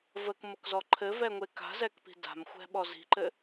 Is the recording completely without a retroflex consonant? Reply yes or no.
yes